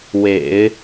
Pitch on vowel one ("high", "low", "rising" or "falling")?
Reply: low